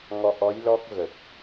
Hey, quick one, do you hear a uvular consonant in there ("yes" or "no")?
no